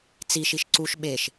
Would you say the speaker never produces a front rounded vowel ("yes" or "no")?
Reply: yes